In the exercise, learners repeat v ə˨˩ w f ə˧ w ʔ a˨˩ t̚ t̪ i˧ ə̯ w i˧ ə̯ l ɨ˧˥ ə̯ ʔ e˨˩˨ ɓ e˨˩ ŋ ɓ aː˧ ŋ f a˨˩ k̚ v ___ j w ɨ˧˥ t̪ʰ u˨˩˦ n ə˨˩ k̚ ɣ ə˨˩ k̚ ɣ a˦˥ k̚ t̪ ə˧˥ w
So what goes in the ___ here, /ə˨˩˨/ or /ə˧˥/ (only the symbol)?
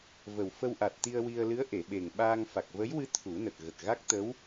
ə˧˥